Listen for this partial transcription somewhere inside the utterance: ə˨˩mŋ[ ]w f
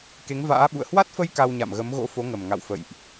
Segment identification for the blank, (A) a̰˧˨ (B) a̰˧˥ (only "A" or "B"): A